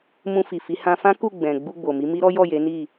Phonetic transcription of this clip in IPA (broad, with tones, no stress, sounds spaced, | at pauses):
m ũ˧ f i˨ f i˨˦ h ã˧ f ã˦ k u˦˨ ɡ͡b ɛ̃˨ ɡ͡b u˧ ɡ͡b o˨ m i˨˦ m i˦ ɾ ɔ˦ j ɔ˦˨ j e˨˦ n i˦˨